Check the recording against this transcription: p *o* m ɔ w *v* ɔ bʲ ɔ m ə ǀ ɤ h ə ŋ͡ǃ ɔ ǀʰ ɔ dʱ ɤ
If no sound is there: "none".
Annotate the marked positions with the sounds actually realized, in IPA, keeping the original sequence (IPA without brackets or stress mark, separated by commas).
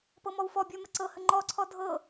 ɤ, f